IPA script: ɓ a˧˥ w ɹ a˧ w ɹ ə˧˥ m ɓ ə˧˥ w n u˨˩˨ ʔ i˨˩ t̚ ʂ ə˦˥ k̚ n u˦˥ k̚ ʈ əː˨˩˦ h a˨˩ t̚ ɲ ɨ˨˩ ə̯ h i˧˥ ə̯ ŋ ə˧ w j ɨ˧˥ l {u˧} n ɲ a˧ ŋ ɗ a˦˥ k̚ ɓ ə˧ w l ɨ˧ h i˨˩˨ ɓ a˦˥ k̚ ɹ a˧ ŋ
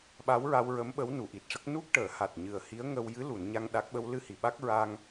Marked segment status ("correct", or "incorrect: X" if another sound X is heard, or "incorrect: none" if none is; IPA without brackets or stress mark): incorrect: u˨˩˨